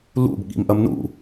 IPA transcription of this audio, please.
l ṵ b ɠ ḭ m ʔ ɐ m n ṵ

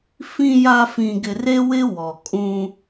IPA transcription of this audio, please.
f ĩ˨ j a˨ f ĩ˨ ɡ ɪ˨ r e˦ w ɪ˦ w ɔ˨ kʼ ũ˦

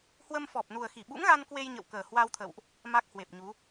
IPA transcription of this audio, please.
h w ə˧ m f ɔ˨˩ p̚ n u˨˩ ə̯ x i˧˩ ɓ ṵ˧˥ ŋ ɣ a˧ n k w e˧ j ɲ ə̰˧˨ w k əː˨˩ h w a˧ w t̪ʰ ə̰˧˨ w ʔ | m a˦˥ k̚ h w e˨˩ p̚ ɲ u˨˦

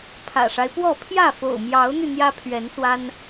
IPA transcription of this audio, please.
pʰ ä̰˨˩ ʂ a˦ ɪ̯ p w ɔ˥˨ pʰ j ä˥˨ f o̰˨˩ ʊ̯ m j ɑ˨˦ ʊ̯ n̪ y˧ n̪ j ä˦ pʰ ɥ ɛ˨˦ n s w a˦ n

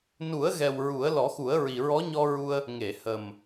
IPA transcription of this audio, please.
n u˨˩˦ ə̯ ɣ ɛ˨˩ w ɹ u˨˩˦ ə̯ l ɔ˨˩˦ x u˨˩˦ ə̯ ɹ i˨˩ ɹ ɔ˧˥ ɲ ɔ˧ ɹ u˧ ə̯ | ŋ e˨˩˨ h ə˨˩ m

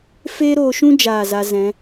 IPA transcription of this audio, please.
f e˦ ɾ o˧ ʃ ũ˦ d͡ʒ aː˦˨ z a˧ z ɛ̃˨˦

